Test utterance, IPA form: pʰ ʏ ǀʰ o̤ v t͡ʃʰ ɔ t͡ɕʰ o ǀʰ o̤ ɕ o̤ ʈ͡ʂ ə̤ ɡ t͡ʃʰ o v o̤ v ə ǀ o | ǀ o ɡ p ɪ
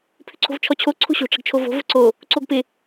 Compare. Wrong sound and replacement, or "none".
none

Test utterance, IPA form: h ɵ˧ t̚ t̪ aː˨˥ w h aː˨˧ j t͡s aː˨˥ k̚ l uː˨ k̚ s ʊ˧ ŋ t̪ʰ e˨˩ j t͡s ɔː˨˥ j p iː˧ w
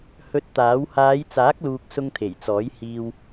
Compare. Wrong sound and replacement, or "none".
p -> h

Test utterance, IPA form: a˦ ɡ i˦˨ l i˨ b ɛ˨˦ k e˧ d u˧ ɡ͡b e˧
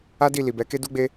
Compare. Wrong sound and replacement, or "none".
ɡ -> d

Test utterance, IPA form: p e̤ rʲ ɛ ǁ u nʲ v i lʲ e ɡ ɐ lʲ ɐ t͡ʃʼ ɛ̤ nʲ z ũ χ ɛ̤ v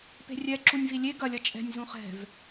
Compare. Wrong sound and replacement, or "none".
none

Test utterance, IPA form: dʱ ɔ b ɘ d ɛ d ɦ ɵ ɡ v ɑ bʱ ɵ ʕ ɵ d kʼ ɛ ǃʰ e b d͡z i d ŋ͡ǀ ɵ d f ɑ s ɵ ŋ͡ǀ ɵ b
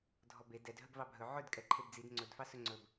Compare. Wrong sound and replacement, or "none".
ɘ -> e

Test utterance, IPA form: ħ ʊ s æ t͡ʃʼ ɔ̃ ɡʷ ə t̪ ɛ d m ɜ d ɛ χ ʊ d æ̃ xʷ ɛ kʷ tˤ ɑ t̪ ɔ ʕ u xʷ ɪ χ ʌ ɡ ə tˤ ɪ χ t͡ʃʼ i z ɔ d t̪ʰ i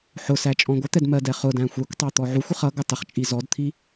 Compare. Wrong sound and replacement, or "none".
none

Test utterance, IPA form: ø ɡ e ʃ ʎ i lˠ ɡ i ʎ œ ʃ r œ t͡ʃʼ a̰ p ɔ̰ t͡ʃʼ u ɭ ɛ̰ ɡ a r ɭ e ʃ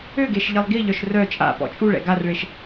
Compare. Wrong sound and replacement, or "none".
none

